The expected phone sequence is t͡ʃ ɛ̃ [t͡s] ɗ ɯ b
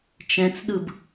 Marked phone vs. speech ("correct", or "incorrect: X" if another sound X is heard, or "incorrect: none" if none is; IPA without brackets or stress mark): correct